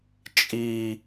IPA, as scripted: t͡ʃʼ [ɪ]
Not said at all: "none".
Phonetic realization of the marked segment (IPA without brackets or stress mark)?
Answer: i